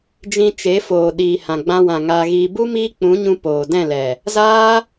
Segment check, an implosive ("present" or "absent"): present